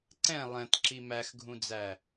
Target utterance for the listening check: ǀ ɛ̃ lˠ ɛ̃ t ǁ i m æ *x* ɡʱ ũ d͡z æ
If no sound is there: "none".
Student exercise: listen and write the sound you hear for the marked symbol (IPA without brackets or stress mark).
x